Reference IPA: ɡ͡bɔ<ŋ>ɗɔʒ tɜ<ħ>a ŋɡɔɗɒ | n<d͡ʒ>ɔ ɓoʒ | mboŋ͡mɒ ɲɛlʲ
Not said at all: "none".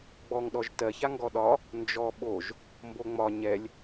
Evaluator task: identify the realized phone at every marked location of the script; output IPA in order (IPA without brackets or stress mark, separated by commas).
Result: ŋ, ç, d͡ʒ